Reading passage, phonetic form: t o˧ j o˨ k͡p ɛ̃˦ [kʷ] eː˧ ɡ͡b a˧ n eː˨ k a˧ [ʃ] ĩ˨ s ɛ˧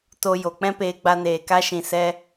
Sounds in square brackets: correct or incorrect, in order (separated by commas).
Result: incorrect, correct